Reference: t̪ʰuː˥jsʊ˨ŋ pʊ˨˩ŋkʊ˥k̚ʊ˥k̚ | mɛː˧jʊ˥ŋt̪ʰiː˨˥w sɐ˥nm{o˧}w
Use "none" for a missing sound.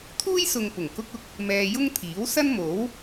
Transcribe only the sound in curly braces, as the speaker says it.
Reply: o˨˥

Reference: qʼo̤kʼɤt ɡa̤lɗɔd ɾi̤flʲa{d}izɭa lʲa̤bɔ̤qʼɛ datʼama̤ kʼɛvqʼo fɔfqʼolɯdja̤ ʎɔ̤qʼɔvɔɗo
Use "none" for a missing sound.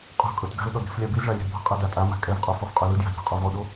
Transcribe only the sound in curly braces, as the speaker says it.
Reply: b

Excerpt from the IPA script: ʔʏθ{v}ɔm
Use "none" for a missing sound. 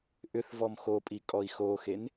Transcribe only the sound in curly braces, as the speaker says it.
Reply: v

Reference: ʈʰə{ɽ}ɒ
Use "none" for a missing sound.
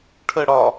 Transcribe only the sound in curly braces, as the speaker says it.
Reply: ɽ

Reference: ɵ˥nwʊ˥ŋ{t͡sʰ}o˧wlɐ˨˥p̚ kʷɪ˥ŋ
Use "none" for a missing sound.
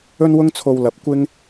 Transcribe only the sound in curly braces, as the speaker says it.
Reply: t͡sʰ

